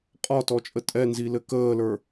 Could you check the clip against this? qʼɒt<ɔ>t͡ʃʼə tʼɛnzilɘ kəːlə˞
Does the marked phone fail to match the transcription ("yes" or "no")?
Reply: no